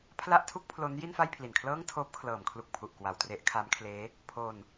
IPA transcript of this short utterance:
pʰ l a˥˩ ʔ tʰ u˥˩ k̚ pʰ l o˦˥ n j i˥˩ n f a˥˩ j pʰ l i˨˩ n kʰ l ɤː˥˩ ŋ tʰ oː˦˥ p̚ kʰ l ɤː˩˦ m kʰ l u˨˩ k̚ pʰ u˨˩ ʔ k w a˨˩ w t r e˦˥ ʔ kʰ a˦˥ m kʰ l eː˦˥ | pʰ oː˧ n

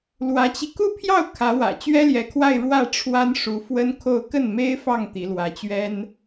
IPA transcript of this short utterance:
l w ä˧˥ t͡ɕ i˧ k u˥˧ pʰ j ɑ˥˩ ʊ̯ kʰ ä˧˥ w ä̰˨˩ t͡ɕ ɥ ɛ˥ l j ɛ˧˥ kʰ w a˥˧ ɪ̯ ɻ w ä˥˩ ʈ͡ʂʰ w a˥ n ʂ u˧˥ f w ə˥ n kʰ o˥˧ ʊ̯ k ə˥˩ n m e˥ ɪ̯ f ɑ˥˩ ŋ t̪ i˧˥ l w ä˧˥ t͡ɕ ɥ ɛ˥ n

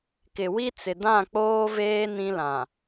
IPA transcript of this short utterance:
k ɪ˨ w i˦ t͡s ɪ˨ d ã˦˨ k͡p oː˦ v eː˦ n ĩ˦ l ã˨

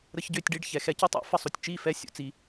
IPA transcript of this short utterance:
ɾ ə˧ ç ɟ ø˦˨ tʲ ɖ i˦˨ ɖ ç ɛ˨ x ɛ˧ c i˦ tˤ ɛ̰˨˦ f ə˧ sˤ u˨ tʲ t͡ʃ i˦˨ f ɛ˦ sʲ ṵ˧ t͡s i˧

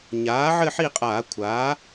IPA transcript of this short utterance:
ɲ aː˩˥ ʕ ɘ˥˧ ħ i˥˧ qʼ aː˧˩˧ kʷʰ aː˩˥

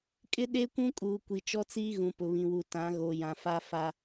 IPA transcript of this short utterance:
kʼ ɪ˦ ɗ e˦ kʷ ũ˦ kʼ uː˨ kʷ i˨ t͡ʃ ɔ˦ t͡s iː˦ ɣ ũ˨ p ʊ˨ β ĩ˨ w u˨ t ã˨˦ ɣ o˨ j ã˨ f a˦ f a˦

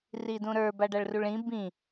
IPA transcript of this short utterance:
r i d ũ ɾ ə˞ b a ɖ a ɭ r u ɭ ĩ b ĩ

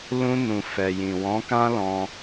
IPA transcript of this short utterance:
l ũ˧ n ũ˨ f ɛ˨ j ĩ˨ w ɔ̃˨˦ k ã˦ l ɔ̃˧

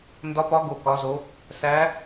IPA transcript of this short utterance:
n d ɒ˦˥ p ɒ˦˥ ɡ o˥˧ k ɒ˦˥ z o˦˥ | s æ˦˥

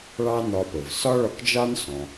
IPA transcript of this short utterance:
ɭ ɑ˥ n ɒ˧ p ə˩ v s ɒ˥ ɭ ɒ˧ k d͡ʒ ɑ˥ n s ɔ̃˩

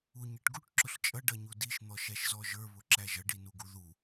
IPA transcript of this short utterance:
u ɲ i ʈ ɡ u ʈ ǁ ʊ ɬ t͡ʃʼ ʌ ɖ ʌ ɲ u d i ʃ n̪ ɔ ʃ æ ʃ z ɔ ʒ ə˞ β ʊ ǁ æ ʒ ʌ ɖ i n u ɡ u ð u

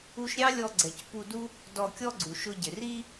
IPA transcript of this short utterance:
u˧ ʃ ɾʲ ɑ˥ lʲ ɔ˧ ɡ͡ǀ ɛ˩ c p u˧ d u˥ | d ɔ˧ kʲ ɔ˥ ɡ͡ǀ u˩ ʃ ʊ˧ ɟ ɪ˩ r i˥

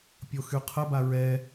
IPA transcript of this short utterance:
pʲ o x y qʰ ə b a ɹ ɛ

